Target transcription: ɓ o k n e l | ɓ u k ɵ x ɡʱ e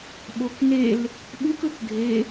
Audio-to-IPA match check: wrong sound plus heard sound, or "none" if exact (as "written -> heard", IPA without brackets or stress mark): x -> k